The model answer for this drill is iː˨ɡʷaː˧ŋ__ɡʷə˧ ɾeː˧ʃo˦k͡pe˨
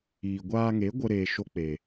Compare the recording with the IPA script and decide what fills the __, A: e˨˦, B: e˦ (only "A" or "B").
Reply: A